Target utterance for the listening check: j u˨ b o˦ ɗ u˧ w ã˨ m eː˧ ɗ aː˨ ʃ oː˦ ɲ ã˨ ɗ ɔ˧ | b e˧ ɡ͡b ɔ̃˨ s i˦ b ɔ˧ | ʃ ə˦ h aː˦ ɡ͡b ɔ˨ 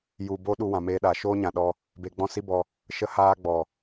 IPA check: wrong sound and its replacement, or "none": ɔ̃˨ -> ɔ̃˦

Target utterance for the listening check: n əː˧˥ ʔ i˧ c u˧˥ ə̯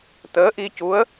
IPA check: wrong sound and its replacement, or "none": n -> t̪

